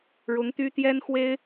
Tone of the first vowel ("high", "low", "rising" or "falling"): rising